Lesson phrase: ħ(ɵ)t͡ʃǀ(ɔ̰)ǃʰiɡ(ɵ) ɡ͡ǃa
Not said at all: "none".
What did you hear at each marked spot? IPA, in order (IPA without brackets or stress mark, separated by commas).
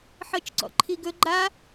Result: ɤ, ɔ̰, ɵ